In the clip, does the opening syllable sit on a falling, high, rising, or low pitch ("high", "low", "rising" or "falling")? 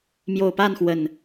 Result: low